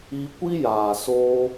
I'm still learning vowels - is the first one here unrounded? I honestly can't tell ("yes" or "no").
yes